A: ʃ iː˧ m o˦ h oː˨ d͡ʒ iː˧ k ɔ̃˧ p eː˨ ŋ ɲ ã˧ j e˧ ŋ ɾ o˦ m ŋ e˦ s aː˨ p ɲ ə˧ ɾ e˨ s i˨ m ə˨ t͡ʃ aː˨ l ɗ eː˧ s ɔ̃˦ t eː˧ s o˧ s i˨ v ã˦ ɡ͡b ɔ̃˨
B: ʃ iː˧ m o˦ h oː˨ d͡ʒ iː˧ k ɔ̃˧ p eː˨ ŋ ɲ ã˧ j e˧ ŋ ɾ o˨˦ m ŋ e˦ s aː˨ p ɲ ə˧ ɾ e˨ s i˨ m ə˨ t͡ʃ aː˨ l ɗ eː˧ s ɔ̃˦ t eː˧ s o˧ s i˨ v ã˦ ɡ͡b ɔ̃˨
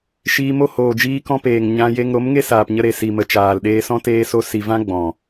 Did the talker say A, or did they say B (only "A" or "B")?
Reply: B